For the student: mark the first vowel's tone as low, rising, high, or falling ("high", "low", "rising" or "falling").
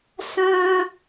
high